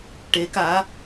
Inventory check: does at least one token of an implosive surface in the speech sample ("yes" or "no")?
no